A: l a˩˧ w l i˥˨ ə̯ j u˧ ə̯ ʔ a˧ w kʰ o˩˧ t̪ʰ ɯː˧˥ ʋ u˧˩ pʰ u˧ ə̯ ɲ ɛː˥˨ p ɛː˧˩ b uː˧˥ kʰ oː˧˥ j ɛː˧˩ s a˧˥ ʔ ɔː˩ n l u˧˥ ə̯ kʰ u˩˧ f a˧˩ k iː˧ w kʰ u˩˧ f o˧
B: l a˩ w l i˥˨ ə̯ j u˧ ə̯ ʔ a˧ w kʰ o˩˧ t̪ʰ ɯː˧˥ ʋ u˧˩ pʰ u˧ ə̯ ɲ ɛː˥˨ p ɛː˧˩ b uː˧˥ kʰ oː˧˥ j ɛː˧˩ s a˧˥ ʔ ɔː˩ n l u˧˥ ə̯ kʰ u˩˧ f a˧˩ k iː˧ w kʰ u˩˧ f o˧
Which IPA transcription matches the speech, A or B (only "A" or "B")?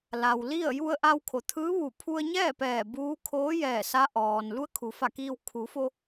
B